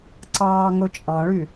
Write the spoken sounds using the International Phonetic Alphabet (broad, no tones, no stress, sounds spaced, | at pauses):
ǀ ɑː ŋ ɵ t͡ʃʼ ɑ̃ ɭ y